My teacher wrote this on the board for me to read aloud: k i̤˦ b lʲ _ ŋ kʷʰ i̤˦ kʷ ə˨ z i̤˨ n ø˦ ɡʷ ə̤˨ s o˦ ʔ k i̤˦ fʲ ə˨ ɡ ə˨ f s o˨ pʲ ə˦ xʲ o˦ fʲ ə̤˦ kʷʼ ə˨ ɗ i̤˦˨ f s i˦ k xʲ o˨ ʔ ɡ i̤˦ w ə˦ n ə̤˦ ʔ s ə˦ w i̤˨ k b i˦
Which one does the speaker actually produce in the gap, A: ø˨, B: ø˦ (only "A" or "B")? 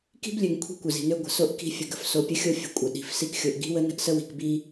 A